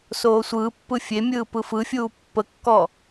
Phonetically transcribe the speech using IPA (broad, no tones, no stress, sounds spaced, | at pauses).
s oː sʷ ɯː pː ɯ fʲ e mʲ ɯː p ɯ f ɯ fʲ uː pː ə kː ɔ